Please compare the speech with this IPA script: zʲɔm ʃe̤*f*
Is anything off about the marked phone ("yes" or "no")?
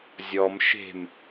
yes